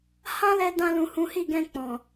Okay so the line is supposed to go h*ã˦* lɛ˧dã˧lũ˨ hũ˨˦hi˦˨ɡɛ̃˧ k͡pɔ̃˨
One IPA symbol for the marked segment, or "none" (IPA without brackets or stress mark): ã˦